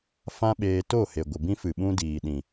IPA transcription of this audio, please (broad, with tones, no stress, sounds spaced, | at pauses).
f ã˦ ɓ eː˧ t o˦˨ h e˨ ɡʷ ə˨ b ĩ˧ f ɨ˨ ɓ ũ˧ d iː˨ ɗ ĩ˨